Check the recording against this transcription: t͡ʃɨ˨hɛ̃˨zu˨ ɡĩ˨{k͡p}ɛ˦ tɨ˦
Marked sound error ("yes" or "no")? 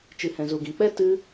no